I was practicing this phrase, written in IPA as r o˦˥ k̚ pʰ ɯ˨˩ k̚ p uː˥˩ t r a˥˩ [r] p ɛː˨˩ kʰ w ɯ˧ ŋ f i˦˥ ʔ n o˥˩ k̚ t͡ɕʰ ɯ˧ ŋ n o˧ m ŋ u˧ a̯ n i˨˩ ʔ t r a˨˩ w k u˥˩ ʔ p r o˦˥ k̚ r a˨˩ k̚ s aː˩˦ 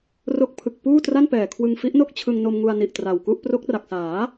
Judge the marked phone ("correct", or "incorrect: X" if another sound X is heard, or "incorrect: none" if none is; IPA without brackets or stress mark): incorrect: n